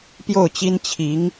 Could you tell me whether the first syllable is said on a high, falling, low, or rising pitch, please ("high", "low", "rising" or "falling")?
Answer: falling